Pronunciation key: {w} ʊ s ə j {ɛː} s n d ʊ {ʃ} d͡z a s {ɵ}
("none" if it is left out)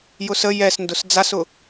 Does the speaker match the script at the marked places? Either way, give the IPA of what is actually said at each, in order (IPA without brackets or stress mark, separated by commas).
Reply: j, ɛ, s, ʊ